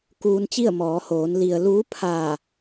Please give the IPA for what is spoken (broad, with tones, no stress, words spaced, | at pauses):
kuː˧nt͡ɕi˥˨ə̯mɔː˩˧hoː˩˧n li˩ə̯ luː˧˥pʰaː˧˩